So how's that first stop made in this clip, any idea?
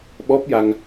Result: implosive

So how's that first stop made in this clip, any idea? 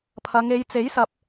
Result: aspirated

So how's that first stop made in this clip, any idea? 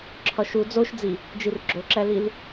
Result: click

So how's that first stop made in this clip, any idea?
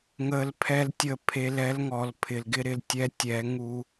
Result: aspirated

